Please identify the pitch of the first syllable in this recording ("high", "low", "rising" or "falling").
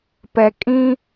low